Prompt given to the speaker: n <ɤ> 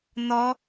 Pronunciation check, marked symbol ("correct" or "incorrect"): incorrect